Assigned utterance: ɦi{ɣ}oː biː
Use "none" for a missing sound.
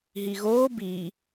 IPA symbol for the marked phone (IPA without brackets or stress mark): ɣ